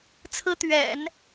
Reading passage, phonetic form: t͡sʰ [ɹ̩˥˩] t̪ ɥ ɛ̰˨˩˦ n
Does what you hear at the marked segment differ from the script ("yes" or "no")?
yes